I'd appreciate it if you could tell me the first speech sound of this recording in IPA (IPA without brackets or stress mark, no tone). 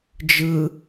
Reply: d͡ʒ